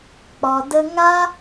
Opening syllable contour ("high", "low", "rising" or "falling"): low